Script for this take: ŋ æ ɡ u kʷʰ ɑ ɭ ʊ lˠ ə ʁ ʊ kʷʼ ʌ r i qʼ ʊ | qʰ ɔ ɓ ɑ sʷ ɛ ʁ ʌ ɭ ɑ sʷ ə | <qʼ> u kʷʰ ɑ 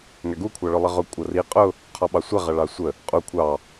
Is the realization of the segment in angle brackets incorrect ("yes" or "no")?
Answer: no